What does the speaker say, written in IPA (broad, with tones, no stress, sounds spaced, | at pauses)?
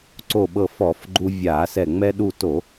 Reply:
ǀ o˧˩ ɓ ɤ˧˩ f ɔ˧˩˧ f ɡ͡ǃ u˧ vʲ a˧˩˧ s ɛ˧˩ ŋ͡m ɛ˧ ɗ u˧˩ t o˧˩˧